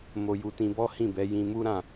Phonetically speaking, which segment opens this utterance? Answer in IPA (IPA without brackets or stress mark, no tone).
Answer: m